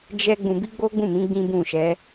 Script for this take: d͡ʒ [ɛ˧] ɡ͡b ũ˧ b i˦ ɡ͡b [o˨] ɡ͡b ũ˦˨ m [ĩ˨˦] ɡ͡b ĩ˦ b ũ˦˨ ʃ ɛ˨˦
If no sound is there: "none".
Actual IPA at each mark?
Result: ɛ˦, o˦, ĩ˨˦

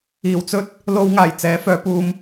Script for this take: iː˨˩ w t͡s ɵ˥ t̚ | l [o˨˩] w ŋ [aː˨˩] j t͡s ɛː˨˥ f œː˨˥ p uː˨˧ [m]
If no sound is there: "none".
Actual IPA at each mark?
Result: o˧, aː˨˩, m

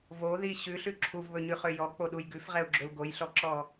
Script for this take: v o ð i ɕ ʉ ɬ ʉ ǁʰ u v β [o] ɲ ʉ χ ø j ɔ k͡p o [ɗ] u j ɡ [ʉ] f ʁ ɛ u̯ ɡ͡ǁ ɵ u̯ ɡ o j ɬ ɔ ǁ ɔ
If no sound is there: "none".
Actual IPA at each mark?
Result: ɵ, ɗ, ʉ

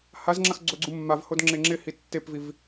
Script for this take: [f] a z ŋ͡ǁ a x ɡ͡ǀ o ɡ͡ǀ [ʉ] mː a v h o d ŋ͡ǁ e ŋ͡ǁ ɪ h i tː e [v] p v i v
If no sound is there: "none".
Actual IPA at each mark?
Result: h, u, none

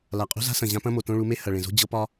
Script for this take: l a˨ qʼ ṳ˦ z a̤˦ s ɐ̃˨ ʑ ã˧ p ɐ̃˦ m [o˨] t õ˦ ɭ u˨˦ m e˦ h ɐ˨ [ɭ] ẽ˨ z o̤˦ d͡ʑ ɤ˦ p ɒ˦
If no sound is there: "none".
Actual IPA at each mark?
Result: o˨, ɭ

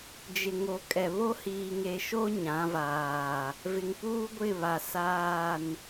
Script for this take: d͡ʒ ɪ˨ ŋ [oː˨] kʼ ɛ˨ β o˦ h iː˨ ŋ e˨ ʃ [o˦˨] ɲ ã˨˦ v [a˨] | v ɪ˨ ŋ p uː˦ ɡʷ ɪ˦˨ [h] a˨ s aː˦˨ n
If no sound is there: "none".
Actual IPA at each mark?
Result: o˨, o˦, aː˨, β

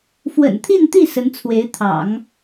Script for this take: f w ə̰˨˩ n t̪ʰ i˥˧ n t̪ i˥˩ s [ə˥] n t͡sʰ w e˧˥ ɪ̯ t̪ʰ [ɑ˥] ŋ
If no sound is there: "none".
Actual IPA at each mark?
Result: ə˧˥, ɑ̰˨˩˦

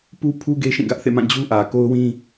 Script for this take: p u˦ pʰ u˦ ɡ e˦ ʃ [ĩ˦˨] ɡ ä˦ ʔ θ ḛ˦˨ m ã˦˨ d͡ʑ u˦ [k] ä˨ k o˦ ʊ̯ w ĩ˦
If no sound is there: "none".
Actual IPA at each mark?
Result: ĩ˦˨, ʔ

